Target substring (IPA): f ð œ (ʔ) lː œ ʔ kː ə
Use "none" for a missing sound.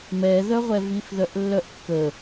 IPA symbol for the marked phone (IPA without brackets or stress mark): ʔ